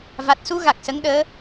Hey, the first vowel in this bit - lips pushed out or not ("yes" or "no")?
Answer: no